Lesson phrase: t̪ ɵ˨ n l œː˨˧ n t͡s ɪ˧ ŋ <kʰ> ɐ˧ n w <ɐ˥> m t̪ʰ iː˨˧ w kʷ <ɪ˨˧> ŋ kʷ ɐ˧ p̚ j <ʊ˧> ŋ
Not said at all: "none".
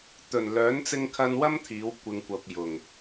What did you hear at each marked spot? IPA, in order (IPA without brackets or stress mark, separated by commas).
kʰ, ɐ˥, ɪ˧, ʊ˨